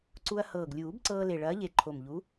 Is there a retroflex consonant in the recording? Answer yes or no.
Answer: yes